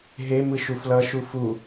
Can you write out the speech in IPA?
ɦ e m ɯ ʃ u f l ʌ ʃ u f u

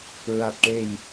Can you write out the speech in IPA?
ɹ a˨˩ t̚ ʈ e˨˩ j

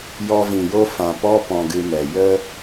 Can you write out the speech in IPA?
j ɔ˧ v ĩ˨ j o˦ f ã˨ p ɔ˦ p ɔ̃˧ ɡ ɨ˧ m ɛ˨ j ə˦

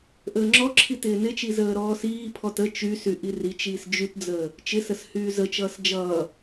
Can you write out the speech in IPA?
ʔ əː ŋ͡ǁ ɔ ǁʰ i t ɪː n ɪ t͡ʃ i z əː ɾ ɔː s iː pʰ ɔ t ə t͡ʃ y s y ʔ i r i t͡ʃ iː s d͡ʒ y t d͡z əː | t͡ʃ ɪ s ə s h yː z ə t͡ʃ ʌː s d͡ʒ ʌː

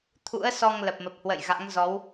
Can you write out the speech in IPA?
t̪ʰ ṵ˧˥ ə̯ s ɔ˧ ŋ l ə˨˩ p̚ m ə˨˩ p̚ h w ə̰˧˨ j ɣ a̰˧˥ ŋ z ɔ˨˦ w

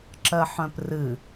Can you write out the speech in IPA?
ǁ ɜ ħ œ̃ p r ɨ

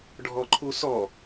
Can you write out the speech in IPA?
ɖʱ ɔ ǃʰ u s ɔ

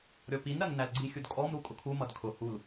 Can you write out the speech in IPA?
ɾʲ ɔ p i n ɾ ɜ ŋ n æ l ɡ͡ǀ i xʲ u d kʼ ɔ m ɾ u kʼ ʊ kʰ u m ʌ d kʰ ʊ h u l

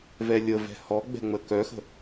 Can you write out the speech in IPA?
v ɛ lʲ ə v ɛ̤ h ɔ ɡ͡b ɛ̤ ŋ͡m ə k œ x ə̤

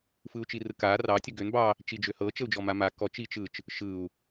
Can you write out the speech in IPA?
f ɯ u̯ t͡ʃ i r ɯ k a r ɑ tʲ ə ɡ ø n b ɑ | t͡ʃ i d͡ʒ ø h ɤ t͡ʃ ə u̯ d͡ʒ ɔ m a m a k ɔ t͡ʃ i t͡ʃ ɯ t͡ʃ | ʃ ɯ u̯

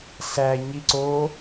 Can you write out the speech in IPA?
ɬ æ ɲ i ǀ o

